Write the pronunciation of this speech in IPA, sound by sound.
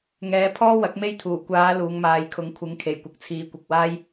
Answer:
ŋ ɛː˨˥ pʰ ɔː˥ w ɐ˨˥ k̚ m e˥ j t̪ʰ uː˨˩ kʷ aː˨˧ l uː˨˧ ŋ m aː˨˧ j kʰ ʊ˨˥ ŋ kʷʰ ɪ˨˥ ŋ kʰ e˨˩ j kʷ ɐ˨ k̚ t͡sʰ iː˨ kʷ ɐ˨ k̚ w aː˥ j

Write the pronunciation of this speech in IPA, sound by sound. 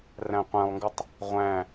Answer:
r æ̃ qʷ æ̃ lˠ ŋ ɡ ɯ tˤ | ʁʷ æ̃

